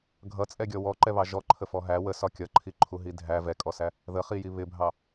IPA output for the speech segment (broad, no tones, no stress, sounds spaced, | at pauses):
ɡʱ ʌ t͡sʼ ɛ ɡʲ ɔ w ɔ ǃ ɛ β ɑ ʒ ɔ ǃʰ ə f ɔ ɦ æ w ə s ɒ kʲ ʌ ǃʰ i ǃʰ u ɦ i dʱ æ v ɛ kʼ ɔ s æ | ð ə χ i j i β ɪ bʱ ɑ